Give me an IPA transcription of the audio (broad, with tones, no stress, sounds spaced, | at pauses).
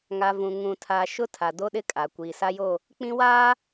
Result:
ŋ a˨ v ũ˨ ŋ ũ˨ tʰ a˨ ʃ ʊ˦ tʰ a˨ d o˦ ɗ ɪ˦ kʼ a˨ kʷ iː˨ s a˦ j o˦˨ | k͡p ĩ˦ w aː˦